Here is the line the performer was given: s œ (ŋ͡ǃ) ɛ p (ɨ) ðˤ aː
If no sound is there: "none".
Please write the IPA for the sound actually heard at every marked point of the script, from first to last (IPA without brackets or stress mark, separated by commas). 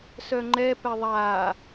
ŋ͡ǃ, ɛ